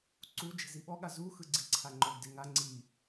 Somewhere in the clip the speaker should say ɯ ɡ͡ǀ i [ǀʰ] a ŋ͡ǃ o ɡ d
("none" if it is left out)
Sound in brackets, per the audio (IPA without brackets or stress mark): ǀʰ